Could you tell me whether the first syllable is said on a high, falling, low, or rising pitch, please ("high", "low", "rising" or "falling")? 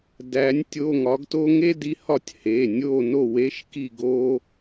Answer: rising